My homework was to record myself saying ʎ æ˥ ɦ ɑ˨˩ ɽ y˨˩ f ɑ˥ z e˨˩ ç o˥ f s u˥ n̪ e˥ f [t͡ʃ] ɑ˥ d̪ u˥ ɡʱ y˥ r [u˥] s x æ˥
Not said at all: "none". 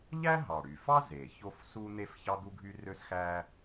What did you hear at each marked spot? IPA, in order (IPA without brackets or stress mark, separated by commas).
ç, ø˥